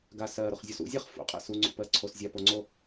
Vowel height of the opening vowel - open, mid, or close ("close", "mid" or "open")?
open